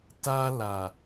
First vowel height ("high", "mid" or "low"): low